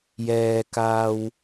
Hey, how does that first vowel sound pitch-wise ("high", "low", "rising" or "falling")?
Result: low